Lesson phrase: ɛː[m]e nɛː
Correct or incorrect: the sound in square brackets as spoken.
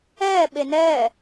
incorrect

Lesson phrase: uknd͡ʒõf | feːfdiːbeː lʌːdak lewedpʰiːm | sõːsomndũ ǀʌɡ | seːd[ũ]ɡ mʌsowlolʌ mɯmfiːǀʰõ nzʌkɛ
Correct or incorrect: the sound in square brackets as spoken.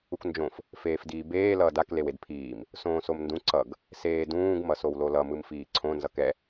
incorrect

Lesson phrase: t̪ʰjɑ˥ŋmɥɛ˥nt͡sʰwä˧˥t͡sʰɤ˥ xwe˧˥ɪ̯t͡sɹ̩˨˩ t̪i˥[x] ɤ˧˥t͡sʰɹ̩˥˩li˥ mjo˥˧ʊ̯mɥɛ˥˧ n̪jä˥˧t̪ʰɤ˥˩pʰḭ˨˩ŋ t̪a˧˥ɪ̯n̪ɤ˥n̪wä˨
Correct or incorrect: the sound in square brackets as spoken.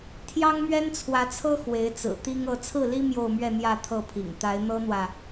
incorrect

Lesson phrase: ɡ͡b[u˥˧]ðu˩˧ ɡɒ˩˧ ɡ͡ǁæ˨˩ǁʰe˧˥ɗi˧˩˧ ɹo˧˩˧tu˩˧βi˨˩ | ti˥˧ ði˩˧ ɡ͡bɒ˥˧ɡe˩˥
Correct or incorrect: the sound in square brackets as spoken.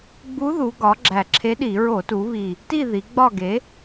incorrect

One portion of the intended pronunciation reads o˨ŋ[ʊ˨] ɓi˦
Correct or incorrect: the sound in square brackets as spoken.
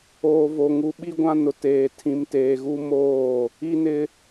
incorrect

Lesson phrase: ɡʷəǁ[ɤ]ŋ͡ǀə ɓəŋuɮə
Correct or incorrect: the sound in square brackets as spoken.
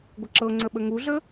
correct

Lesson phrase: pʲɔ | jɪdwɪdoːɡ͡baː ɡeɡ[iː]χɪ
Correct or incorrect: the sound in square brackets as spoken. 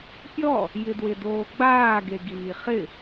correct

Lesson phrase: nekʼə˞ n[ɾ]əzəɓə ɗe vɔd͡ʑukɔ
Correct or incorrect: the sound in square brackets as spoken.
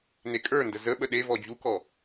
incorrect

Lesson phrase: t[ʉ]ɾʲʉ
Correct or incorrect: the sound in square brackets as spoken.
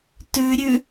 correct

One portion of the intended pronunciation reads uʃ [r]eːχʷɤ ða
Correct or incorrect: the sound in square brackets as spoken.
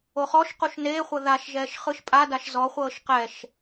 incorrect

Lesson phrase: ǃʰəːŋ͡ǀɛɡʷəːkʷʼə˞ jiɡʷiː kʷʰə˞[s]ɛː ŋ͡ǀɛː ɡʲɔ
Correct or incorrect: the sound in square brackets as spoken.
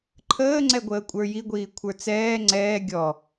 incorrect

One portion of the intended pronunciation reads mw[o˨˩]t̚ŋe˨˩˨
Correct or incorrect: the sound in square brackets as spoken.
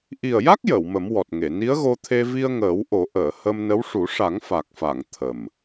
incorrect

